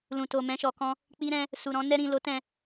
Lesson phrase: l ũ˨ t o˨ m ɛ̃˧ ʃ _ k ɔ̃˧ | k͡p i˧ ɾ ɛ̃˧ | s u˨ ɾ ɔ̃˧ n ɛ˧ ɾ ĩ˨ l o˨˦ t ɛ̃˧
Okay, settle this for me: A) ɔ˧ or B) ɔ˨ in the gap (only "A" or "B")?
B